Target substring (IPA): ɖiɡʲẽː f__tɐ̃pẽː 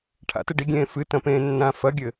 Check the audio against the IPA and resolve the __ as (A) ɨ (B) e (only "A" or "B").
A